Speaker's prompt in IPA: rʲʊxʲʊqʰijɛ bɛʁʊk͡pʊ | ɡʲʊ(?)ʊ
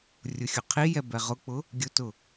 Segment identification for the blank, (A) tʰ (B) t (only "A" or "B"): B